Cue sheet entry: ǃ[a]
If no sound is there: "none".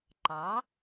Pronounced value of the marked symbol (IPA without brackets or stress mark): ɑ